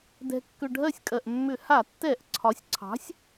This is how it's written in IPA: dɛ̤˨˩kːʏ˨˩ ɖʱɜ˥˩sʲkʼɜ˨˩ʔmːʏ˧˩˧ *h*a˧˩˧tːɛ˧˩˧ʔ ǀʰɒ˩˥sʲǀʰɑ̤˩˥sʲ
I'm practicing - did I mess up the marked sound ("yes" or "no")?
no